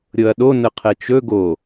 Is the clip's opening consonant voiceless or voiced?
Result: voiced